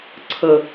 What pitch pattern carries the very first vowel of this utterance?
low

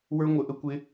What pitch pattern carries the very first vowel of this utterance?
high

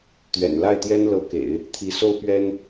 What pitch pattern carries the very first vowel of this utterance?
low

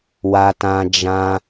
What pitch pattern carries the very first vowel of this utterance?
high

